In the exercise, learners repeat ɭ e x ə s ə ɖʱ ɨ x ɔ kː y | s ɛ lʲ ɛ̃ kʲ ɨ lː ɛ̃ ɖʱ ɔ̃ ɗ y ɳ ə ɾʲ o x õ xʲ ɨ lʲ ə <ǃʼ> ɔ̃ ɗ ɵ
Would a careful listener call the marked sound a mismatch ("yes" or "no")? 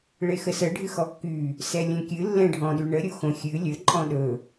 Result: no